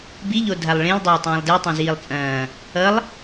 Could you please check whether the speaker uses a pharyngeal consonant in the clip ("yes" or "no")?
no